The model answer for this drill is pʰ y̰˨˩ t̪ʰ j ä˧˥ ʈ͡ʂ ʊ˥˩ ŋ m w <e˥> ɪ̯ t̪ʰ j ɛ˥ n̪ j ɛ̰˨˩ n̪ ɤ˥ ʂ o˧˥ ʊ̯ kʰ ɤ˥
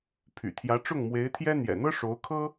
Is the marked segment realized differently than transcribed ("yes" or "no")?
yes